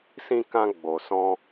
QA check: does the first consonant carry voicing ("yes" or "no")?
no